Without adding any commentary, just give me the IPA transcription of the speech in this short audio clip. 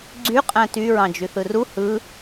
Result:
ɡ͡ǀ y qʼ æ̃ t y ɹ ɑ̃ d͡ʒ y θ ɯ r u h ɯ

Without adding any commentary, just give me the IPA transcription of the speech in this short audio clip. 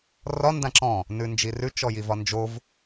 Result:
r ɒ n d ã ǁ ɔ̃ | n ʉ n d͡ʒ i r ʉ t͡ʃ ɔ j i v ɒ n d͡ʒ o v

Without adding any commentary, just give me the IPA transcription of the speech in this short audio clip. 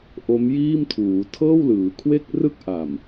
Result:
ʔ o˦˥ m j iː˥˩ m tʰ uː˩˦ tʰ ɤː˥˩ w l ɯː˩˦ kʰ w e˥˩ k̚ r ɯ˥˩ k̚ ʔ a˨˩ m

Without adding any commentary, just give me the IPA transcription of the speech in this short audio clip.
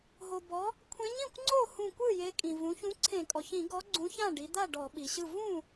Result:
ɦ o˩ b ɔ˩˧ | kʷʰ ẽ˨˥ ɲ ĩ˥˩ kʷ ŋ͡ǀ o˥˩ h ũ˧˩ kʷ ɯ˥˩ j e˨˥ kʼ ĩ˩ v ũ˩˧ ç ũ˨˥ ǀʰ ẽ˧˩˧ kʼ ɔ˩ ç ĩ˧˩˧ ɡ ɔ˨˥ ɡ͡ǀ ũ˨˥ ç ã˥˩ ɖ i˩˧ d̪ a˥˩ ɖ ɔ˧˩˧ ɓ i˩ ɕ ɯ˥˩ v ũ˥˩

